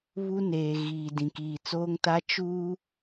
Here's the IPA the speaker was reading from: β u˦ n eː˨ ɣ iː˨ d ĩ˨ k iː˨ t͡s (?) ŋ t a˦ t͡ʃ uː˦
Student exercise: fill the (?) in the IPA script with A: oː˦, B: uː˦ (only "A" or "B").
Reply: A